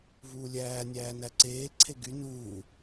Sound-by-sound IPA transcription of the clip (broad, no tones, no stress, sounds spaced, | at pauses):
v uː lʲ æː nʲ æː n æ ǀ eː ǀʰ e ɡ y n uː